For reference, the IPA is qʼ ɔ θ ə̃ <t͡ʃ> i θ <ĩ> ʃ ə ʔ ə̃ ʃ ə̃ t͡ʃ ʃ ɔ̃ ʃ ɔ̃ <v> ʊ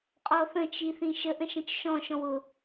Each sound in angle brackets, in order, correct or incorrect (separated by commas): correct, correct, incorrect